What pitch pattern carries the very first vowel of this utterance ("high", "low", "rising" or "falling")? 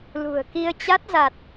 low